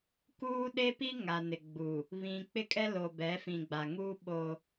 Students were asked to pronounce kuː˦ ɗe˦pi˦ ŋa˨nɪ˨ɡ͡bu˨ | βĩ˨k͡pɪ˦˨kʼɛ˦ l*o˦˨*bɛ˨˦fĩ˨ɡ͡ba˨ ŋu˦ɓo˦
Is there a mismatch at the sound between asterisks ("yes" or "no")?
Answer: yes